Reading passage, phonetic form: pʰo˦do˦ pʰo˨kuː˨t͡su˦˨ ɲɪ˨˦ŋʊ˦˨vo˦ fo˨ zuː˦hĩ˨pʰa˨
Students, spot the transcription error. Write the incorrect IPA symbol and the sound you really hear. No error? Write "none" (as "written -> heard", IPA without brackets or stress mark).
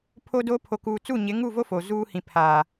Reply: ʊ˦˨ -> u˦˨